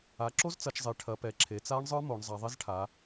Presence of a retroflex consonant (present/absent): present